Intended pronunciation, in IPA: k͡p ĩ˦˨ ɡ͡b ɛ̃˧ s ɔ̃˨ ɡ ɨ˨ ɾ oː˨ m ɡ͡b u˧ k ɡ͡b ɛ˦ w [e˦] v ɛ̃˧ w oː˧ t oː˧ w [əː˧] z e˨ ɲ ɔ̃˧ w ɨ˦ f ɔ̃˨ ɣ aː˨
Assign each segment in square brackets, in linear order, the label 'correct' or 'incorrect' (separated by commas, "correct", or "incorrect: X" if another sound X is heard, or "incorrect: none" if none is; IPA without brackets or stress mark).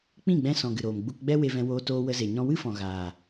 incorrect: e˧, incorrect: ə˧